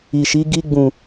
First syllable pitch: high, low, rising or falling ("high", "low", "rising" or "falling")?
low